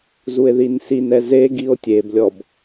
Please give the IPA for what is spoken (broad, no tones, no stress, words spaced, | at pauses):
zue̯ðinsinɛ ze ɡio̯tʲeblʲɔb